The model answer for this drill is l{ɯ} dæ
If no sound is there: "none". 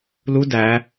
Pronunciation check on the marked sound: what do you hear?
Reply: u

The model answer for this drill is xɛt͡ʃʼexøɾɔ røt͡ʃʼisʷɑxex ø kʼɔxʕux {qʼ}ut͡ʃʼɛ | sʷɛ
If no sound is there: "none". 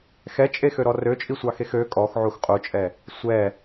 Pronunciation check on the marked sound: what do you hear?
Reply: qʼ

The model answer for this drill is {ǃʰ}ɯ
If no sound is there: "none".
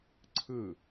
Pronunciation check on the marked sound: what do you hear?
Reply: ǀʰ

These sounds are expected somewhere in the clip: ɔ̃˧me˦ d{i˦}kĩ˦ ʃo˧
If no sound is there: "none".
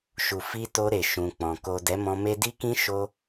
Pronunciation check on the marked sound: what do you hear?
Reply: i˦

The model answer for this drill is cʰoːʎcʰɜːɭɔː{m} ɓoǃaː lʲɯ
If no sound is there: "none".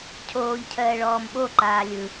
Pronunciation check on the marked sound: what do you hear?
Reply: m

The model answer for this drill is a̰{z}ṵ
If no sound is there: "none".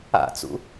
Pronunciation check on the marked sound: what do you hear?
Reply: t͡s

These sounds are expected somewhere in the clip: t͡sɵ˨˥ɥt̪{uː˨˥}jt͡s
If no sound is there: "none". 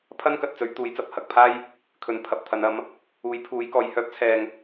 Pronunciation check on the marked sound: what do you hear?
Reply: uː˨˥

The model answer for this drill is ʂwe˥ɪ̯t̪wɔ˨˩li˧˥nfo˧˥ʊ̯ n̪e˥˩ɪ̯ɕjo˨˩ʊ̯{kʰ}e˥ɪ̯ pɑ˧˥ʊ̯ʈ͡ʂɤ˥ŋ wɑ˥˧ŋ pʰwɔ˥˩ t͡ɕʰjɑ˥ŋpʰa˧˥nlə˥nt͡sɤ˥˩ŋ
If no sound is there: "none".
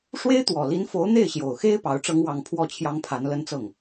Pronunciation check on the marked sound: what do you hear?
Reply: x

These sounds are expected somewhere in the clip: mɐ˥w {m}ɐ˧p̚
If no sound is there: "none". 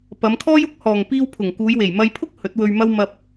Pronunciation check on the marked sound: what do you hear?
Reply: m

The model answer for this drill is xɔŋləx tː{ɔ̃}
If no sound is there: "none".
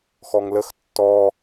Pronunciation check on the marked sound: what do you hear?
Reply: ɔ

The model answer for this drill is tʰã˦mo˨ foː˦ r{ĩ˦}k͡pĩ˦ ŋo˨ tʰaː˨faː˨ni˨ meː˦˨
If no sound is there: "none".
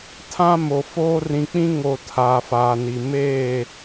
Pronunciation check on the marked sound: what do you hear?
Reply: ĩ˨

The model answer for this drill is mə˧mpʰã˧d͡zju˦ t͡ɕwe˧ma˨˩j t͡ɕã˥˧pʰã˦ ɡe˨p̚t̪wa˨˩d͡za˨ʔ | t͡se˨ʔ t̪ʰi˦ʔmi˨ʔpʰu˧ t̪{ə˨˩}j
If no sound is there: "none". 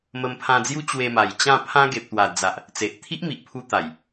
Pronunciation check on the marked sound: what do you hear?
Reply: a˨˩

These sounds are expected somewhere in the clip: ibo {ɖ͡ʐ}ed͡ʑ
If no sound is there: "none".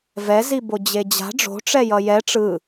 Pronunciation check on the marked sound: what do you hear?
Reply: d͡ʑ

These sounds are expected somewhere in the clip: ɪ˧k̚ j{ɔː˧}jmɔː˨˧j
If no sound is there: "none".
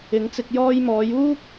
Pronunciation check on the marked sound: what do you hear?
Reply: ɔː˧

